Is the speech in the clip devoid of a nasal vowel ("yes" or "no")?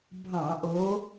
no